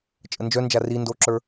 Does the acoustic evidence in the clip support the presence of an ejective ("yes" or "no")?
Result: yes